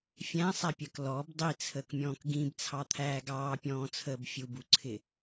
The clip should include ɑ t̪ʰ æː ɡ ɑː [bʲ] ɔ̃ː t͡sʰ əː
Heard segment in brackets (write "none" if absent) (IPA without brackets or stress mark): pʲ